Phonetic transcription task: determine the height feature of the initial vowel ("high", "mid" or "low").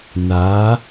low